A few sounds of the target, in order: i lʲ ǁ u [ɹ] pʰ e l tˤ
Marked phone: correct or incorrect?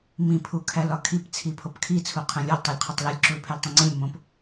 incorrect